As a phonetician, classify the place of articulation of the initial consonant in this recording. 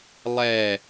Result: alveolar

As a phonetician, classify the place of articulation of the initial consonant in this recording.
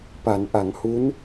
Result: labial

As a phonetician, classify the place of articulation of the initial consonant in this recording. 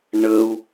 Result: retroflex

